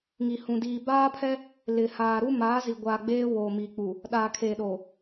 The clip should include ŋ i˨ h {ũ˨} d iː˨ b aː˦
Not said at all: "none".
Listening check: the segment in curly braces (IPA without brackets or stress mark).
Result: ũ˨